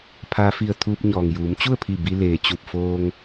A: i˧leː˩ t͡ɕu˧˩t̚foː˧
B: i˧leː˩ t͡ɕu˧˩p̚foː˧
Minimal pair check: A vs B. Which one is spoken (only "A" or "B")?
B